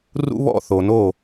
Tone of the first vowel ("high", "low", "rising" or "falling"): high